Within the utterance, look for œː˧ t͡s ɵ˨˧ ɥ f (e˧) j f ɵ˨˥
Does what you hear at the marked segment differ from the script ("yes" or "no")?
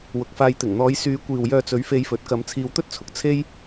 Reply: no